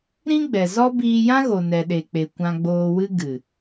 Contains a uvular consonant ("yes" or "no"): no